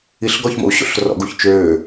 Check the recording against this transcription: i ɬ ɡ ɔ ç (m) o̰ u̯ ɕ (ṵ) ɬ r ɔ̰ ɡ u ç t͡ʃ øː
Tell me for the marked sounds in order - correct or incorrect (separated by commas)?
correct, incorrect